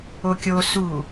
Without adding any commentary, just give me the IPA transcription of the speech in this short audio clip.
okʲo su

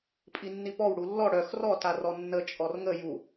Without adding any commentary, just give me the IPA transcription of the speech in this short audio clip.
pʼinːipɔw ɽulːɔ ɽœx rɔ tarɔnːə t͡ʃʼɔrŋə ju

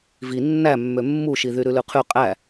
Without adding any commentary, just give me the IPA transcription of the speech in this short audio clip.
vi nːæmːø mːuʃi ðyɾʉlʉqʰy qʼæ

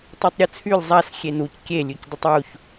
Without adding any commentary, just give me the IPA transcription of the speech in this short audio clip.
tˤetˤɾʲut͡sʰylʲ zˤas xʲenuc kʲe lʲʉcdˤʏtˤwuç

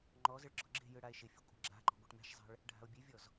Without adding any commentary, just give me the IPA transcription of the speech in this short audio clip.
ŋ͡ǃɔzɪɭ ɡ͡ǁɔɡ͡ǁe̤jɯ ɽae̯ʃɪfʲə kʷʼa̤ɡ͡ǁa̤ǃɔ̤ ɡʷɛʈmɛ̤ʃzˤɛ̤ɭ | ɖʱa̤o̯bʲevʲɔz

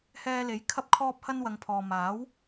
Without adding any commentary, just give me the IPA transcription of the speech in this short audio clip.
hɛː˧le˨˥j kʰɐ˧p̚kʰɔː˧p̚hɐ˧n wɐ˨˧ŋpʰɔː˨maː˨˥w

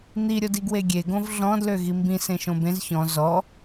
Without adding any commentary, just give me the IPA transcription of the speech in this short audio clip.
n̪iɾʲod iɡweɡʲe ɡõvɮɔ̃dlø ɣimbĩ sẽʃõbẽz çɔ̃ zɔ

